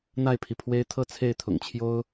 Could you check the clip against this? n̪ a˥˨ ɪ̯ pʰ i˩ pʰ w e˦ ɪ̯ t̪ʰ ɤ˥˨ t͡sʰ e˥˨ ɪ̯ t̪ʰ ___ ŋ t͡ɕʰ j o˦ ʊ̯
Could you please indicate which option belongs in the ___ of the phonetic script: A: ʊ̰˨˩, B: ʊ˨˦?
A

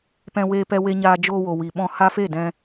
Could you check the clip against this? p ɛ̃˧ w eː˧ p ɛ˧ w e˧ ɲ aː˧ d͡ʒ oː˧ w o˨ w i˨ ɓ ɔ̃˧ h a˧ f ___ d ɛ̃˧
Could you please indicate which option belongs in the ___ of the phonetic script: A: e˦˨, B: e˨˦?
A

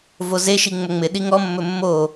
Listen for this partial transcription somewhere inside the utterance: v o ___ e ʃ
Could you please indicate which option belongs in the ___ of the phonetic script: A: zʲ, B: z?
B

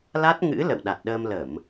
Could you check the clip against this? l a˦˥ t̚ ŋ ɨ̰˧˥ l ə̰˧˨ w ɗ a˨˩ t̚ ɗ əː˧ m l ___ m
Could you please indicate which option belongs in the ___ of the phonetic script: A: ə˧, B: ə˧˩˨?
B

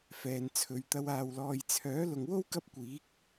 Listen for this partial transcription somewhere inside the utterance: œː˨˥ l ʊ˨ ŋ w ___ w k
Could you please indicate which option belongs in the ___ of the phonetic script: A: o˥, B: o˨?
A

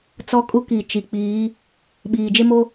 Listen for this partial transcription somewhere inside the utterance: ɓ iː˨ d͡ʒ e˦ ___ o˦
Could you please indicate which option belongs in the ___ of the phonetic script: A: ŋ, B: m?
B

